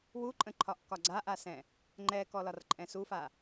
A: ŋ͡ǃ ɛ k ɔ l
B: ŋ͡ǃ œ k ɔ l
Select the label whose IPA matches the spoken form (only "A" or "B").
A